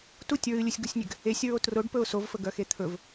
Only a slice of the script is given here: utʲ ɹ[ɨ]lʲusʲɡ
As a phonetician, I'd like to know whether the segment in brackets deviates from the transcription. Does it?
no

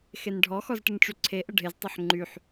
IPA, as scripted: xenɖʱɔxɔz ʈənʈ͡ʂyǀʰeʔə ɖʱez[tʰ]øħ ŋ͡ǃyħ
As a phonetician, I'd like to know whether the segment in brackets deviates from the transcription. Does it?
yes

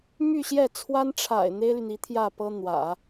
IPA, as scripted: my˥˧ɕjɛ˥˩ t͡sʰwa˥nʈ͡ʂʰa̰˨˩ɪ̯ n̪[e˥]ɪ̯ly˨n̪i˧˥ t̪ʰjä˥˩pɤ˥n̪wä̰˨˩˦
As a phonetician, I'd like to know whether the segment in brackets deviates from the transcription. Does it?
no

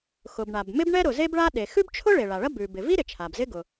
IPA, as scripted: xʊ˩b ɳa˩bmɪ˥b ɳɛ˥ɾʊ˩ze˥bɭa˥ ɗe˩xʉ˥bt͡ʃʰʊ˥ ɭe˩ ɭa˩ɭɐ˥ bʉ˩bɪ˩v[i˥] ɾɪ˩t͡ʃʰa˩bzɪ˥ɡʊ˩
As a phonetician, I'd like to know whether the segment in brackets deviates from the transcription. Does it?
no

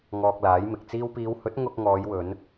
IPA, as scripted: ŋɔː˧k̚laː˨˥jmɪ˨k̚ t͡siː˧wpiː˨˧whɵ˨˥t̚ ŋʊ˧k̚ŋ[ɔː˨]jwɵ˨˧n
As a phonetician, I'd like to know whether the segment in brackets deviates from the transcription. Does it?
yes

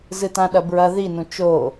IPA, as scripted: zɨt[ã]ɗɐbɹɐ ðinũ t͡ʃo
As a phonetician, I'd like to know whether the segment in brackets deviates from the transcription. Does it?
no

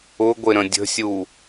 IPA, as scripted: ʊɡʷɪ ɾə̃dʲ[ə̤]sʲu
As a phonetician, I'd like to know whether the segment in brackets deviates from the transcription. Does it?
no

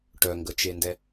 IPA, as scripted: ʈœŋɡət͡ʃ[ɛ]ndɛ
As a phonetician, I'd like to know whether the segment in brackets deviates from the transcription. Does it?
yes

